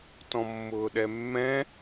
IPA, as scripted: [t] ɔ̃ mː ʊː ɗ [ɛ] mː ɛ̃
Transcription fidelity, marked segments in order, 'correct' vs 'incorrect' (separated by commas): correct, correct